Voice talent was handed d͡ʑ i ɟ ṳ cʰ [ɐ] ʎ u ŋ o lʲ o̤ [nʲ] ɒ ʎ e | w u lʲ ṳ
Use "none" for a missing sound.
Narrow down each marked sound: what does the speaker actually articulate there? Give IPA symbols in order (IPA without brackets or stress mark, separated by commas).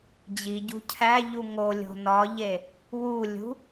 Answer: æ, n